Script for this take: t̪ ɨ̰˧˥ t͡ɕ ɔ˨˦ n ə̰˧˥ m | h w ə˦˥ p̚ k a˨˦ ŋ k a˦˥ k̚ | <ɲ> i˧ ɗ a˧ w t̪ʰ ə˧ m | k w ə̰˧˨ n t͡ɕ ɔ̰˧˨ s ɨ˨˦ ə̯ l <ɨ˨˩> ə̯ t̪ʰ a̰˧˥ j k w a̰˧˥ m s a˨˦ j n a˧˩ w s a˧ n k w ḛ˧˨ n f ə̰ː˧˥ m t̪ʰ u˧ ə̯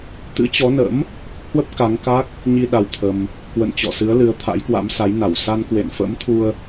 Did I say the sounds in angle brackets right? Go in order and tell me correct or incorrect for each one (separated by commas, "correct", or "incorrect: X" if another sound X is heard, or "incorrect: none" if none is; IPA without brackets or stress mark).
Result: correct, incorrect: ɨ˨˦